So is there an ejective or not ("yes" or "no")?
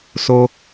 no